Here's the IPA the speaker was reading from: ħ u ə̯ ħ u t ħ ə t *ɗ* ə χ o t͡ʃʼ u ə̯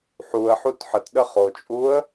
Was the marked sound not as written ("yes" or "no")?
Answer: no